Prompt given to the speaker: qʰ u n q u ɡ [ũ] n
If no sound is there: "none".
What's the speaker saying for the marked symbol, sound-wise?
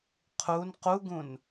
ũ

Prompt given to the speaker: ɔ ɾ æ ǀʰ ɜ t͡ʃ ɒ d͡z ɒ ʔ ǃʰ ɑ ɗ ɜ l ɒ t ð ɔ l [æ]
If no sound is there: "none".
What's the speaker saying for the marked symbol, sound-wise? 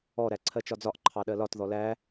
æ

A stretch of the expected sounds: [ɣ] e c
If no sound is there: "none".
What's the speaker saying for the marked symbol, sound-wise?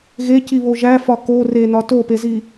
ɣ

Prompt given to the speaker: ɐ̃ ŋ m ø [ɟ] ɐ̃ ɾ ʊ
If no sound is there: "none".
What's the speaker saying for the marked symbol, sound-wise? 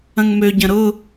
ɟ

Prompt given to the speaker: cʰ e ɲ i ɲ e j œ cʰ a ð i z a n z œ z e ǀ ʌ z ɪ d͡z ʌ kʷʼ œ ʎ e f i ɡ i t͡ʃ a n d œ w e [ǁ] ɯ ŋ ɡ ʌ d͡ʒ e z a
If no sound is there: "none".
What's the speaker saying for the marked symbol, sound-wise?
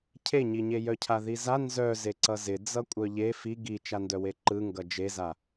ǃ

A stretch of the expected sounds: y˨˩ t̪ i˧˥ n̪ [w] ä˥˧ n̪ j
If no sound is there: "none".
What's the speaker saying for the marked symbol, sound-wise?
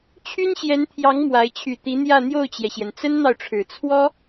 j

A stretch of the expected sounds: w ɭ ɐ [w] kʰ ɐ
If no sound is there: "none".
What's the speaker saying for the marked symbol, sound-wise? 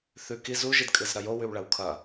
w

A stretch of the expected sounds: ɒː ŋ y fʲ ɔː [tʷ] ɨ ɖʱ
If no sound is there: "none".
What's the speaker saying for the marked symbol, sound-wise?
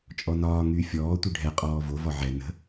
tʷ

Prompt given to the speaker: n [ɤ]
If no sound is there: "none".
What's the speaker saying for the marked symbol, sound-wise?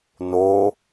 o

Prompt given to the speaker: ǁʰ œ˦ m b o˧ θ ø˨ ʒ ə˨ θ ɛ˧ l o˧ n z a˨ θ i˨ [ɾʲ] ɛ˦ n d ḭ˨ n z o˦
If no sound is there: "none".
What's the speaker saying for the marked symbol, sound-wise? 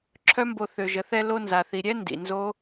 ɾʲ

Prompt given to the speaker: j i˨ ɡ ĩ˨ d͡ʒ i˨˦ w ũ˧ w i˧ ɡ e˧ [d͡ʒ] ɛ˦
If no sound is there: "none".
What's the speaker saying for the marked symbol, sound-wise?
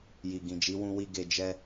d͡ʒ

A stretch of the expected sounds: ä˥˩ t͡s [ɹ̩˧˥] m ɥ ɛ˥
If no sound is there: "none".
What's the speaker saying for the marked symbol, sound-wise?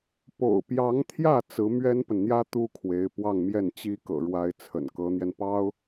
ɹ̩˧˥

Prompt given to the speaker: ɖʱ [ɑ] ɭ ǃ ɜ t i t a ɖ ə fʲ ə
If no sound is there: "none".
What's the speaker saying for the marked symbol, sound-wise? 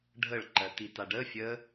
ə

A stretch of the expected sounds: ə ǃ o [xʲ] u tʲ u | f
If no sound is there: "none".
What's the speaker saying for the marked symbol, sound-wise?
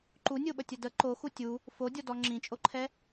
x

